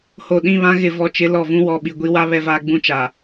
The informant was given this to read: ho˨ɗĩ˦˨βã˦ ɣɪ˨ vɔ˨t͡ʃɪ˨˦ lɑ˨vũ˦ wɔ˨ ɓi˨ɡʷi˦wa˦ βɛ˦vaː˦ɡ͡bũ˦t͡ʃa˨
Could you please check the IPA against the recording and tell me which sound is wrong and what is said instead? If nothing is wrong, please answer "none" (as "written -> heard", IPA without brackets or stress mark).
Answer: ɑ˨ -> ɔ˨